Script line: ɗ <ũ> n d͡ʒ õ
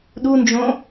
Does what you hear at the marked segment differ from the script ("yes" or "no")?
yes